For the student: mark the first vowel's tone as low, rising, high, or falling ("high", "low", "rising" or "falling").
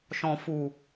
low